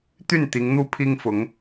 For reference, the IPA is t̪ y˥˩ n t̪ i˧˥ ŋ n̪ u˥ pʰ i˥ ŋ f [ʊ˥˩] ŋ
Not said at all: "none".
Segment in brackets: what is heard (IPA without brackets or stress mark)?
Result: ʊ˧˥